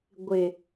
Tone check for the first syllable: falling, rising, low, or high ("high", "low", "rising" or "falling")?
low